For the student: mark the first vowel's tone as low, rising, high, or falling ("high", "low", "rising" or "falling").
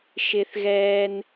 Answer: low